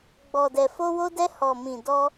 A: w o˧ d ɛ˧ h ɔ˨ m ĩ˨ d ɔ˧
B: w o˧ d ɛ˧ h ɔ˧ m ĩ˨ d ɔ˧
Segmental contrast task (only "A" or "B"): A